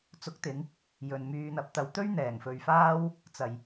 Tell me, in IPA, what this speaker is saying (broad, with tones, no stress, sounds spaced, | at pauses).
t͡s ʊ˨˥ k̚ t̪ ɪ˨˧ ŋ | j ɵ˨ n m yː˨ n̪ ɐ˨˥ p̚ t̪ ɐ˨ w t̪ ɵ˥ ɥ n̪ ɛː˨˩ ŋ f ɵ˨ ɥ f aː˥ w | t͡s ɐ˨ j